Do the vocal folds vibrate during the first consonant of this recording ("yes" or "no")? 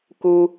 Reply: no